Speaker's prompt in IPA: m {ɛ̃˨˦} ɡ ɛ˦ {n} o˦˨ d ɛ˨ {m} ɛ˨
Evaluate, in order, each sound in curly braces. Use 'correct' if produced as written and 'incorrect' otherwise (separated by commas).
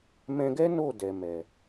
incorrect, correct, correct